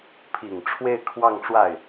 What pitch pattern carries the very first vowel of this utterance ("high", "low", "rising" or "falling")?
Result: low